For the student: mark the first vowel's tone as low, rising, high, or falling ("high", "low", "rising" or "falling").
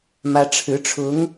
high